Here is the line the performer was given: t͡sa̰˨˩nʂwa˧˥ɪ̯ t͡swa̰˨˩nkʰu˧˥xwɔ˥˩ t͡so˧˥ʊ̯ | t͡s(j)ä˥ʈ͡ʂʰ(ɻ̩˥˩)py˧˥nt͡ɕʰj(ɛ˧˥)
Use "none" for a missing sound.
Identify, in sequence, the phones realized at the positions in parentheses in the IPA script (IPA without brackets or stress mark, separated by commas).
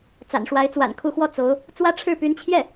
w, ɻ̩˥˩, ɛ˥˩